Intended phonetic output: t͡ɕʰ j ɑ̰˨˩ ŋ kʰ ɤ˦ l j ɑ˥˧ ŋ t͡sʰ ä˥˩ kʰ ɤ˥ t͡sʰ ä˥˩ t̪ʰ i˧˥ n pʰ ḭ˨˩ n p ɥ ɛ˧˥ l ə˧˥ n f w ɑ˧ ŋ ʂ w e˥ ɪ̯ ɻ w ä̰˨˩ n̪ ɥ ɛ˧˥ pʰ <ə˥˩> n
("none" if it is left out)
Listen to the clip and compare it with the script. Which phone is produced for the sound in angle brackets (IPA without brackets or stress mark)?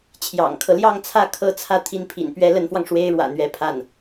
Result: a˥˩